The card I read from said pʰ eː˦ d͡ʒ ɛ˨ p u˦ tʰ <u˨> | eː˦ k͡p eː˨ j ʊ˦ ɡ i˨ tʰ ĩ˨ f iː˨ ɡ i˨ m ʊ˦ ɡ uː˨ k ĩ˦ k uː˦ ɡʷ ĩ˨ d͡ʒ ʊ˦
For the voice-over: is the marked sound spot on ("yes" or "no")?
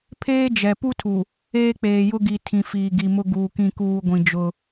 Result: yes